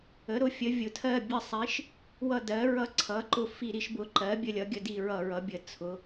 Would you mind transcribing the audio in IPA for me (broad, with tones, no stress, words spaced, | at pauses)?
ə˩˥ ɾʊ˩˥fʲə˩˥vʲʊ˩˥ tʰɜ˦˨bʲə˦˨sˤi˩˥ʃ | wʌ˦˨dɜ˩˥ ɹʌ˦˨ǀʰʌ˩˥ǃʊ˦˨ fi˦˨ɾi˩˥ʃbʊ˩˥ ǃɜ˩˥ bʲə˦˨lʲʌ˩˥ɡʲə˦˨di˦˨ ɹʌ˦˨ɹʌ˩˥bʲə˩˥ t͡sʰʊ˩˥